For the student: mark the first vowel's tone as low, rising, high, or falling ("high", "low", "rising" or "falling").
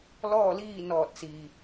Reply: falling